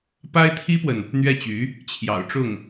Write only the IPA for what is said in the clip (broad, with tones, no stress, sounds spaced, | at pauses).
p a˥ ɪ̯ t̪ʰ i˥ p w ə˨ n | n̪ ɥ ɛ˥˩ t͡ɕ y˧˥ | t͡ɕʰ j ɑ̰˨˩ ʊ̯ ʈ͡ʂ ʊ˥˩ ŋ